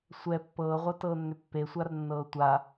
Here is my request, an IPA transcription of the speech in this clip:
sʷɛ pːɤːʁʷɤtɤːnːʏ pːesʷarnːɤː tʷa

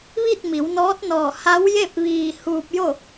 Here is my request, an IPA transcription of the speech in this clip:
ʋi˥˨t̚mi˩˧wnɔː˧˥t̚nɔː˧˩ ha˧˥wje˥˨p̚ʋiː˧˩ huː˧p̚jo˥˨

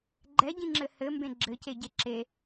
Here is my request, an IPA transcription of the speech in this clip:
ɡ͡ǃɛɟĩŋ͡ǁɘ hɘmbẽ ɡ͡ǁɘceɟe ǁe

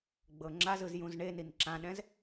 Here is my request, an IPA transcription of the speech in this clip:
ɡ͡bɤŋ͡ǁazɯz jũzɳenin ǁãɗɛ̃z

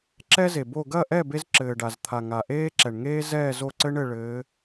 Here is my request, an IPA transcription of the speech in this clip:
ǁɛ˥ze˩bo˥˨ ɡɐ˥˨ʔɛ˥˨ be˥zǁɘː˩ɖa˩zt̪ʰa˩ ŋa˩ʔeː˥ǁɛ˩ɳ ŋeː˥zɛː˥˨ zo˥˨ǀɘ˥ɳɘ˥˨ ɭɘː˨˦

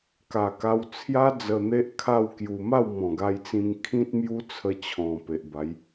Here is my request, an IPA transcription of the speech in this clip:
ka˨˩ka˧wt͡sʰja˦ d͡zə˧n̪e˦ʔkʰa˥˧w kju˧ ma˥˧wmɔ̃˨˩ɡa˧jt͡sĩ˧ŋ kʰĩ˦t̚mju˦t͡sʰə˧t͡ɕʰɔ̃˨˩ pe˨ʔba˨˦j

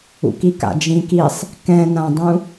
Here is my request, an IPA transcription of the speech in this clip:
ṵkika̰d͡ʒĩ kisˤ | kɛ̃nãdˤũ

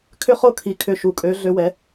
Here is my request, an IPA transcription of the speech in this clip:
kʰʏ˧˥χo˧ kʰi˩kʰʏ˩˧ ʃu˩kʼø˩˧ ɮø˩˧wɛ˩˧

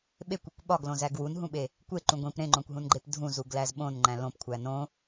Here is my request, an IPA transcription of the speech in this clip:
ɓekʷikʷ ɓɒɡlõzæ ɡwunɦũɓe | kʷeǃũ ɡʷĩp ɾẽŋ͡ǃõkʷɦũnɡ͡ǃep dʱũzuɡlæz ɓõnŋ͡ǃæ̃ lõpkʷʰæ nõ

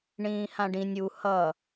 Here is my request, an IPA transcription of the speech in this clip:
ɳĩːhãɖĩnʲ u hʌ

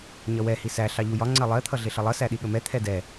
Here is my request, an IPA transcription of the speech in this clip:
ɲʌwɛ hisæ ɬɑʎujɒ ŋ͡ǀɜlˠɜ t̪ʰʌɮɪɬʌlˠʌ sæɗiɠəmɛ t̪ʰɛdɛ

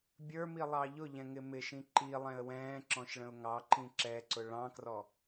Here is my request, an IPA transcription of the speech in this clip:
bʲə˞milˠɑ ʎʊʎɛ̃ŋɪ mɪʃĩ ǃilˠɛ̃ə̯ wɛ̃ːǁɔ̃ʃɭə̃ʊ̯ ŋɑǃĩ ǁɛǀʊ ɭɑ̃krɔ

